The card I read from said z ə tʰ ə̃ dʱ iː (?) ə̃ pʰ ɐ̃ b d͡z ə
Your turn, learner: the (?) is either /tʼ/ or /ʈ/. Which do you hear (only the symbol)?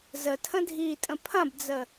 tʼ